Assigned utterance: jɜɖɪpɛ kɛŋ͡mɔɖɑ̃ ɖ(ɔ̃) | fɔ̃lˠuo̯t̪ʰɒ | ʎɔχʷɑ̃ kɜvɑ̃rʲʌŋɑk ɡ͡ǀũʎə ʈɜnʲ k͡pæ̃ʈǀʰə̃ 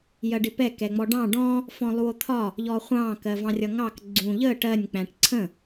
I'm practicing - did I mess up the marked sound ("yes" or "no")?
no